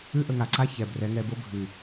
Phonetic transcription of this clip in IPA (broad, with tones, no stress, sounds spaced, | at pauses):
ʉ˦ ʔ ə˧ ŋ a˨ ǀ a˦ ç ɛ˨ b r ɛ˨˦ ŋ ɛ˧ b o˦ bʱ ʉ˨